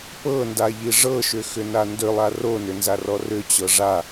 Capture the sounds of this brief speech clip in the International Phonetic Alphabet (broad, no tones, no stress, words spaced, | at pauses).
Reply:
pɤndaʎi ʐɤʃʏxʏna ndʏlˠa ronʏnzarɔ rʏt͡ɕɤ ʐa